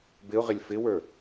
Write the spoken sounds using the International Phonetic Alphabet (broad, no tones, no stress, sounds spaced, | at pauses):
b ɪ ʊ̯ ʁ ɪ lʲ f ɪ w ə˞